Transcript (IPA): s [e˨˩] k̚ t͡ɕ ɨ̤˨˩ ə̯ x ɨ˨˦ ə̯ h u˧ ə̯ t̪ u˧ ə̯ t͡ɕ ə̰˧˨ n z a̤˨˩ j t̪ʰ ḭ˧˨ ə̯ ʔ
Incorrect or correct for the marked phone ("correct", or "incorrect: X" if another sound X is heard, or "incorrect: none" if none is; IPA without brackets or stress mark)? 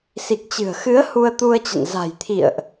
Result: incorrect: i˨˩